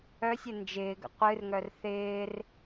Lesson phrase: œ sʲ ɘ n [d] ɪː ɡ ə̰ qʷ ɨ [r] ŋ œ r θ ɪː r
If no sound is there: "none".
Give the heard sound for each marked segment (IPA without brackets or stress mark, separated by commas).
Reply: d͡ʒ, r